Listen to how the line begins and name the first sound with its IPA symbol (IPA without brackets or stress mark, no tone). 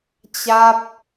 t͡ɕ